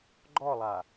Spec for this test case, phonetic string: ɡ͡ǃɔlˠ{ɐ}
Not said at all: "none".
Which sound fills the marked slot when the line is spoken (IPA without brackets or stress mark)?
a